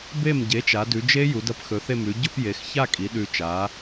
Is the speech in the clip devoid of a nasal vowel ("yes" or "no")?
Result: yes